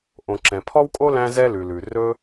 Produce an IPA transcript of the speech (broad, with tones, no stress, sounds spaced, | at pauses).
ʔ õ˩ ǁ ɛ̃˩ pʰ ɔ˥ w kʼ o˥ l æ̃˥ z ɛ˥ l ʉ˩ l ʉ˩ r ɵ˥